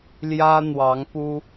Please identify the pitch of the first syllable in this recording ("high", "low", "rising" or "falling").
high